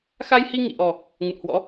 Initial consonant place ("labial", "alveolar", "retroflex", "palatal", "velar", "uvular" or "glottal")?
velar